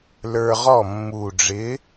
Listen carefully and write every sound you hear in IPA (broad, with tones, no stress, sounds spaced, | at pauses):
l ə˞˧ ʁ ɔ˥˩ mː u˨˩ ɖ͡ʐ ɪ˨˥